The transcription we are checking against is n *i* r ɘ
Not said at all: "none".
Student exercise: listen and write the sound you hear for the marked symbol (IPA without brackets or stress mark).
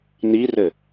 i